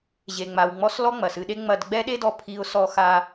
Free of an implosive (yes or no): no